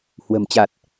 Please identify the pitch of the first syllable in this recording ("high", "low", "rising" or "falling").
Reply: low